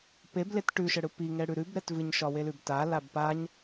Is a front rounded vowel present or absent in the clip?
absent